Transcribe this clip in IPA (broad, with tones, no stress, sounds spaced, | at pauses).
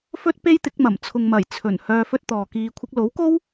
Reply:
f ɵ˥ t̚ p e˥ j t̪ ɪ˨˥ k̚ m ɐ˨˩ m t͡sʰ ʊ˨ ŋ m ɐ˨˩ j t͡sʰ ɵ˨˩ n h œː˧ f ɵ˥ t̚ t̪ ɔː˨ k iː˧ kʷʰ ɪ˥ k̚ l o˨˥ w k o˥ w